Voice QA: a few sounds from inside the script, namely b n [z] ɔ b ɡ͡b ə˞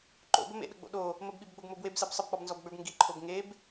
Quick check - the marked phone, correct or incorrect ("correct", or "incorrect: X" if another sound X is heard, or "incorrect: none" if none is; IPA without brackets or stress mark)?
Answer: correct